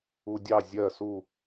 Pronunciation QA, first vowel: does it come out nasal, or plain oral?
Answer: oral